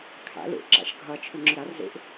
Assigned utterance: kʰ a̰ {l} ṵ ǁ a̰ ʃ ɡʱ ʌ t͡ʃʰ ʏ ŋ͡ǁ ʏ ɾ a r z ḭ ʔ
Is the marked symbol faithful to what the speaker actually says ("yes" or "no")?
yes